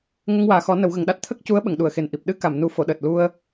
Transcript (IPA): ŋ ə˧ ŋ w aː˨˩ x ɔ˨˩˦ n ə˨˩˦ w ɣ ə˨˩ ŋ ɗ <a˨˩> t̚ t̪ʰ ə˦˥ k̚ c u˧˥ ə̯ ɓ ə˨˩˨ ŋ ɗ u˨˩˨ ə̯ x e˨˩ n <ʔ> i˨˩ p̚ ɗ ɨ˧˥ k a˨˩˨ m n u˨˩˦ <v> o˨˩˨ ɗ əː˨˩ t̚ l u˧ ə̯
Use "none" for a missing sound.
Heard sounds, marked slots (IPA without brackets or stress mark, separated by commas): a˦˥, ʔ, f